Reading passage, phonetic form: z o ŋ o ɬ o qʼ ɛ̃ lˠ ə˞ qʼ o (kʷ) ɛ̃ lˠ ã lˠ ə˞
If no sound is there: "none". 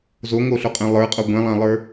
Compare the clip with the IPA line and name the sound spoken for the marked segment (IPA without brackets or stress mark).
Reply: ɡʷ